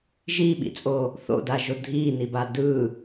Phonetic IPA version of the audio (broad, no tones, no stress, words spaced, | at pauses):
ʒiːɓḭt͡sʼoː | θo̰daʒo dʱiːnibaː dɯː